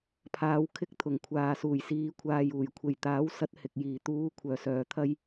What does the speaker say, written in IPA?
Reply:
pʰ aː˨˧ w kʰ ɪ˧ k̚ t̪ʰ ʊ˨˩ ŋ kʷʰ aː˨ s uː˨˩ j s iː˨˧ kʷʰ aː˨ j uː˨˩ j kʷʰ e˨˩ j t̪ aː˨˥ w s ɐ˧ t̚ h ɪ˨ k̚ j iː˨˩ t̪ uː˨˧ kʷʰ œː˨˩ s œː˨ t̪ʰ ɐ˧ j

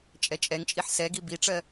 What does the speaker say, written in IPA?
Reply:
t͡ʃʼ ɛ t͡ʃʼ ɛ ŋ t͡ʃʼ i ħ s ɛ ɡ i b i ʈ͡ʂ ɜ

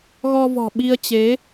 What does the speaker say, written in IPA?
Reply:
ɣ ɔ˧ v ɔ̤˨˩ ɓ i˧ ə̯ t͡ɕ e˨˦

